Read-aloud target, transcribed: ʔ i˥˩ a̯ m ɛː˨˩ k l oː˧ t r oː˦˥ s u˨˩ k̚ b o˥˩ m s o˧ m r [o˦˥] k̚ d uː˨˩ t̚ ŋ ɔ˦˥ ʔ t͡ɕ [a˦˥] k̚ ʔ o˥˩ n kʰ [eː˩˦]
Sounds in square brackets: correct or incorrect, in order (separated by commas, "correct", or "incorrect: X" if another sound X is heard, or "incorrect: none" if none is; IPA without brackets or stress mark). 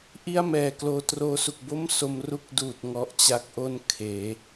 incorrect: u˦˥, correct, correct